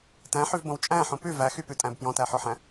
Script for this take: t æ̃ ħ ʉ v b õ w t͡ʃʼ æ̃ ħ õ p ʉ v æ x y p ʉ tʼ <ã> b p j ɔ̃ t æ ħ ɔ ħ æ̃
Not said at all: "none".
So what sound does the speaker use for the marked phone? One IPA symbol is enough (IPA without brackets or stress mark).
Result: æ̃